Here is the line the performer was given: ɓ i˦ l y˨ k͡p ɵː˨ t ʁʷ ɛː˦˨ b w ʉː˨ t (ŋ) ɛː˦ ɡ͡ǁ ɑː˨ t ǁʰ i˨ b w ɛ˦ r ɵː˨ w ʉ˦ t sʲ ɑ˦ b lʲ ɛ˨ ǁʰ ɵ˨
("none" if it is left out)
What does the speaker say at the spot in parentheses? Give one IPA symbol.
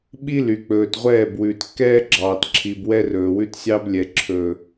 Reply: kː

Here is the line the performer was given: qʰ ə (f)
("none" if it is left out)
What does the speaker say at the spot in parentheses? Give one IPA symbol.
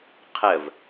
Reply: v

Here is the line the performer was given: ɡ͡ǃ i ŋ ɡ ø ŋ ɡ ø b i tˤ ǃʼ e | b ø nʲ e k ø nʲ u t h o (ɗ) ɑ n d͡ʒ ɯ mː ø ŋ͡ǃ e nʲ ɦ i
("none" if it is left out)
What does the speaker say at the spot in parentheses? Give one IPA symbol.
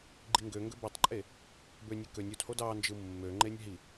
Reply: d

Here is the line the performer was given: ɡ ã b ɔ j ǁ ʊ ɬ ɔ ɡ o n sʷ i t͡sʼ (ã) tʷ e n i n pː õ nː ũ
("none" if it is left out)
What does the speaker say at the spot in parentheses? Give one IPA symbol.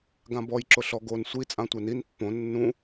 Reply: ã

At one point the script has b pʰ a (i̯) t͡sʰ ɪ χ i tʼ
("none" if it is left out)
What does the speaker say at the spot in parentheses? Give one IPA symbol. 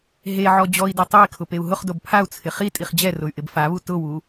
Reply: u̯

